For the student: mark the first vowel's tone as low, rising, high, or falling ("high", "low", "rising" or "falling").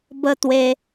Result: high